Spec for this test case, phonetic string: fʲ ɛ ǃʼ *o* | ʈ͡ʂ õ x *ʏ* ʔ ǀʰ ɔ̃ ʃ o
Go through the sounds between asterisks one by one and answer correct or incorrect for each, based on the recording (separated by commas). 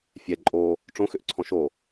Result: correct, correct